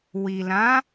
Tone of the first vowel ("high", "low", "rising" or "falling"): low